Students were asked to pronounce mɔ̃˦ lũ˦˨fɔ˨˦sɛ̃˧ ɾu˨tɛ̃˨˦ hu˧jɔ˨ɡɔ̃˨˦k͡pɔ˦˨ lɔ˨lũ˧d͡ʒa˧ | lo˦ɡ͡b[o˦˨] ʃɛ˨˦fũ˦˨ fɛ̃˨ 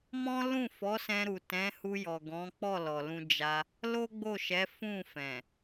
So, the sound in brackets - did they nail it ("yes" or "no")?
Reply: yes